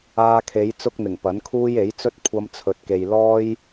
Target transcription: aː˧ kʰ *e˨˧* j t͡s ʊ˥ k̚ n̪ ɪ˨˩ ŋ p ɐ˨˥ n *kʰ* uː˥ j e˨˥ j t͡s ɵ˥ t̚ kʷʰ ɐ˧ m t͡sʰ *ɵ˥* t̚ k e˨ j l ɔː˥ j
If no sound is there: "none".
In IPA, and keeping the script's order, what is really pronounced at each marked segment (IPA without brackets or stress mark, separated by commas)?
e˨˧, kʰ, ɵ˨